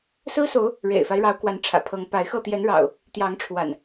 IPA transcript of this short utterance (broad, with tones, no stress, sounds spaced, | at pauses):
s ɹ̩˦ s o˨˦ ʊ̯ | ɻ ḛ˨˩ ɪ̯ f a˦ ɪ̯ ɻ ɑ˨˦ ʊ̯ k w a˨˦ n ʈ͡ʂʰ ä̰˨˩ pʰ ɤ˨˦ ŋ p a˨˦ ɪ̯ x ɤ˥˨ t̪ j ɛ˨˦ n ɻ ɑ̰˨˩ ʊ̯ | t̪ j ɑ˨˦ ŋ ʈ͡ʂʰ w a̰˨˩ n